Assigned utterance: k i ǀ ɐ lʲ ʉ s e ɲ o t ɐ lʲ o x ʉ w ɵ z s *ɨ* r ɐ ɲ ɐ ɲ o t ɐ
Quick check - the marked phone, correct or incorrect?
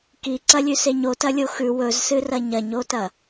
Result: correct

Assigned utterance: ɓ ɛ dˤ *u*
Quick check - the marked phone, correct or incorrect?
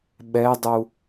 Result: correct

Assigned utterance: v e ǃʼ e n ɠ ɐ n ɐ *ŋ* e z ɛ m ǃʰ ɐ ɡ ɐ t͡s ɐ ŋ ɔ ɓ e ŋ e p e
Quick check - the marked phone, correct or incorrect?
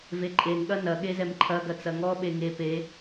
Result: incorrect: ɠ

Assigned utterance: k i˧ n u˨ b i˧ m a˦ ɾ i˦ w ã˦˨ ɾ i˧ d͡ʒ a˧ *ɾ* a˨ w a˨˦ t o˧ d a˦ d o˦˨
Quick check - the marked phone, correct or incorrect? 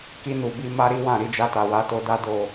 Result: incorrect: t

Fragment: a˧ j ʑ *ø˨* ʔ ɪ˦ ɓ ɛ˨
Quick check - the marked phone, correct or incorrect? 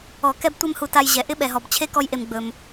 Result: incorrect: ɛ˨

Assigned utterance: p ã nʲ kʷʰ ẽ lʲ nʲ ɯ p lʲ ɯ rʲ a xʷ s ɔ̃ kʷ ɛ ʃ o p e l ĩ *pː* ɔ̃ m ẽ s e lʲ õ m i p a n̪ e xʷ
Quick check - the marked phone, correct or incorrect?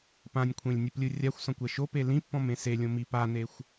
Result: correct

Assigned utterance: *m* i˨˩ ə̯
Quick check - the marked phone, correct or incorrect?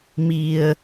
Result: correct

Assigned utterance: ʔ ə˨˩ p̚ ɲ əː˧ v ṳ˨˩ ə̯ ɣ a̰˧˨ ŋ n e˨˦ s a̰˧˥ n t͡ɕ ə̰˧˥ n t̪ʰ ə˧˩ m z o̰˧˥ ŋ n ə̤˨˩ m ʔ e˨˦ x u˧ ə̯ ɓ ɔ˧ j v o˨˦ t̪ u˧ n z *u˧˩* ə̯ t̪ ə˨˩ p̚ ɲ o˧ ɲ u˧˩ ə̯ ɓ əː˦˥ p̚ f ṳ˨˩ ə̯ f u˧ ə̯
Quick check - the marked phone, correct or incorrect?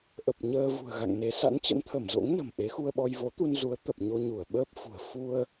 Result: incorrect: u˨˦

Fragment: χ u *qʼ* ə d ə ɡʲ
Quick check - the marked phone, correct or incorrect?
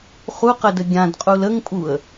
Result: incorrect: q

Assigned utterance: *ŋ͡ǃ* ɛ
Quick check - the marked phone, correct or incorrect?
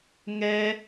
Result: incorrect: ŋ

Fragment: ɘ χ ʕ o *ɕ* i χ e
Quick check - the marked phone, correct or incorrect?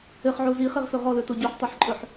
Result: incorrect: z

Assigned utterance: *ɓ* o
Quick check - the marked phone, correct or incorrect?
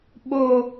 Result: correct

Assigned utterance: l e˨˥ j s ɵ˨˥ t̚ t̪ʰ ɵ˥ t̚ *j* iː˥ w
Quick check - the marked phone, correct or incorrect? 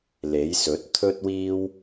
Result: incorrect: w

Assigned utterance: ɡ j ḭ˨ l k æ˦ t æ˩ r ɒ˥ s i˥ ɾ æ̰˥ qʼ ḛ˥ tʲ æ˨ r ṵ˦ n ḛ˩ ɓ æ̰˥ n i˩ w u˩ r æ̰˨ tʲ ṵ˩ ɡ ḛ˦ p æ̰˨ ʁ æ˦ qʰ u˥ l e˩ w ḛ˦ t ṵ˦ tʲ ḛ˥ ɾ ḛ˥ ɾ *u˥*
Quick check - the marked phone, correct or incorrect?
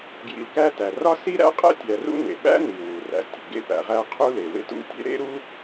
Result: correct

